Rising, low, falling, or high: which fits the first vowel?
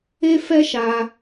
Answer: high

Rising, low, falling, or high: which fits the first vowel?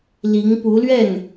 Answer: rising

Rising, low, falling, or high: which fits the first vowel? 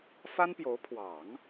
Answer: high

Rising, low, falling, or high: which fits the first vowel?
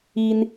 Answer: high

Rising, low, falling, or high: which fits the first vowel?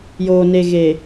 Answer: low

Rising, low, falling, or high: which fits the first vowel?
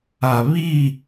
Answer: low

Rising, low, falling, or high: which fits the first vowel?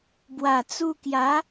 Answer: low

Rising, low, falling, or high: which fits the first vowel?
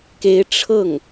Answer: rising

